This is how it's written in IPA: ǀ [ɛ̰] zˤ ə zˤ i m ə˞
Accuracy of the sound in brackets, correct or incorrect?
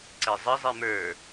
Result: incorrect